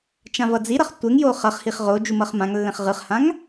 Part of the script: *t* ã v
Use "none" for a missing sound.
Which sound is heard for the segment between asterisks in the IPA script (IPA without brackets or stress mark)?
t͡ʃ